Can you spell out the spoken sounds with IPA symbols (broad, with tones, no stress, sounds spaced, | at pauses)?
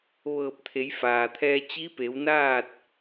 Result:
ʋ ɤː˧˩ p̚ t̪ʰ e˩˧ j f aː˩ t̪ʰ ɛː˧ t͡ɕ i˧˥ p e˩˧ w n aː˥˨ t̚